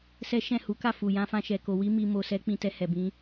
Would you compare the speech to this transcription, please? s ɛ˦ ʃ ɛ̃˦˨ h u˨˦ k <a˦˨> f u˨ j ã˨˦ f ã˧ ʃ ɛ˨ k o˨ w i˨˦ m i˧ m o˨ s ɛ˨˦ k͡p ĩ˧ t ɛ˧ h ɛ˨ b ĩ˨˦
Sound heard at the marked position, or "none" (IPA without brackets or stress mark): a˦˨